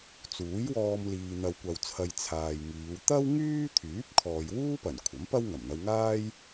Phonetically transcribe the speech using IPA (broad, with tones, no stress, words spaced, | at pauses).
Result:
t͡suː˨˥jwɔː˧m liː˧n̪ɐ˧w kʷɐ˧wt͡sʰɐ˧j t͡sʰaː˨jŋiː˨˧w t̪ɐ˥wŋyː˥t̪ʰyː˨˥p̚ kʰɔː˨jwuː˥pɐ˨˩n kʷʰɐ˨˥mpɐ˥w ŋɐ˨˩mn̪ɐ˧wŋaː˥j